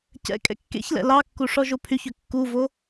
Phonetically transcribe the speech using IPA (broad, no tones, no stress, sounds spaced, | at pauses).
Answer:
c ɛ̰ kʼ ɛ̰ kː ḛ ç l ɛ̰ l ɑ kː u ʂ ɔ ʒ o pʰ y ç ø kː u v o